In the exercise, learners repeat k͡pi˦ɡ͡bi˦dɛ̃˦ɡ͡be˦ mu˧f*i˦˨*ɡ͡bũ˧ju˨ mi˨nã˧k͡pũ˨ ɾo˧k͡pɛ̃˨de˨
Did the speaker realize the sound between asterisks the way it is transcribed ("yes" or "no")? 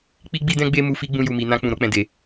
no